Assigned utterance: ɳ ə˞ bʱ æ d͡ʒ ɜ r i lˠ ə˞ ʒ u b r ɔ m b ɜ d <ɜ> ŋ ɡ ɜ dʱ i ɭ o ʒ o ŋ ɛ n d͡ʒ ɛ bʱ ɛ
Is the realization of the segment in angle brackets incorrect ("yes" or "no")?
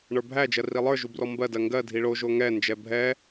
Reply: no